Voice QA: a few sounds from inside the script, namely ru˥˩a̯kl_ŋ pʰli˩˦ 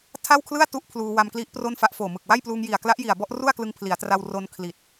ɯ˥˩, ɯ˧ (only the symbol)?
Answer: ɯ˧